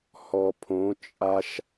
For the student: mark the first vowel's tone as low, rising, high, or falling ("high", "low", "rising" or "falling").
low